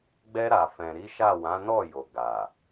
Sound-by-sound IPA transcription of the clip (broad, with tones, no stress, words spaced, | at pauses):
ɡ͡bɛ˧ɾa˨ fɛ̃˨ɾi˨˦ʃa˦˨ wã˨˦nɔ˦˨ jo˨ɡa˨